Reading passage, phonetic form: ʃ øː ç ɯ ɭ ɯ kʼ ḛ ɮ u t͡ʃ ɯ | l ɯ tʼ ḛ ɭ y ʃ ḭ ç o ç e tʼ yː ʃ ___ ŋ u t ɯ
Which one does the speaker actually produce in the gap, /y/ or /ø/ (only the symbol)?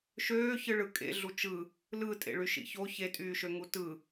ø